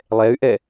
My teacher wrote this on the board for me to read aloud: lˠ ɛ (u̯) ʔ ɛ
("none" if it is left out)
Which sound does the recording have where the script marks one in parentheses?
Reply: y̯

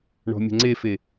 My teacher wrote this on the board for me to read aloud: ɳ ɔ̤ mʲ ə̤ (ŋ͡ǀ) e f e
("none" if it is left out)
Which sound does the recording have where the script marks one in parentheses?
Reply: ŋ͡ǀ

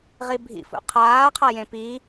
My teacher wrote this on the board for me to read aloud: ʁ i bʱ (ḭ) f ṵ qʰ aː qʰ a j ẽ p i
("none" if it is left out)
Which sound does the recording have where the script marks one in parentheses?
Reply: ḭ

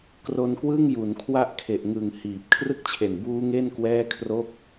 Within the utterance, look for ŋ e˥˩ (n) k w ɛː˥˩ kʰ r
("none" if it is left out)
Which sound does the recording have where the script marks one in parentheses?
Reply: n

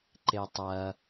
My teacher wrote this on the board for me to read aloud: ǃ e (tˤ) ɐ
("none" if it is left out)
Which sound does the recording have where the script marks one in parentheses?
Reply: tˤ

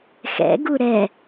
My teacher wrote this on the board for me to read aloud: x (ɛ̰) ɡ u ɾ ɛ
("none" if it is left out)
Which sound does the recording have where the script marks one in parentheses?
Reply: ɛ̰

